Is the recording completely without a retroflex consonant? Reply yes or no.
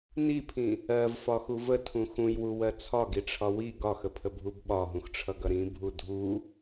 no